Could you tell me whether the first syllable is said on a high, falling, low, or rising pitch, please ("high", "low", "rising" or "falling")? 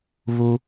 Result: high